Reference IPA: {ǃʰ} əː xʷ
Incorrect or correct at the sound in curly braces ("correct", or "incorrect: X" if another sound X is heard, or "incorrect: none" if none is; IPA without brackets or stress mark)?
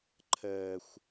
correct